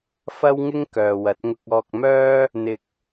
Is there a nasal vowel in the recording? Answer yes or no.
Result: no